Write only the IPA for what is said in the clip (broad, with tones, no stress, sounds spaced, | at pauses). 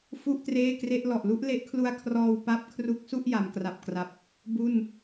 f u˥˩ ʔ t r eː˥˩ k r e˥˩ ʔ l ɔ˨˩ ʔ l u˦˥ ʔ l e˦˥ ʔ kʰ l u˧ a̯ kʰ r ɔː˧ w p a˦˥ p̚ kʰ r u˦˥ k̚ s u˥˩ ʔ j a˩˦ m k r a˨˩ p̚ k r a˨˩ p̚ | b u˥˩ n